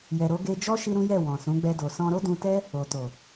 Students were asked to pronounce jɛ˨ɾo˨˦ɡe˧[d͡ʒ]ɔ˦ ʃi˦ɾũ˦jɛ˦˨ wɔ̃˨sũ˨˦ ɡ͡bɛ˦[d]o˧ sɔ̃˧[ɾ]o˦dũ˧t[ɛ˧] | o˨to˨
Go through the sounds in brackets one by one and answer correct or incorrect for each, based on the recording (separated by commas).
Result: correct, correct, correct, incorrect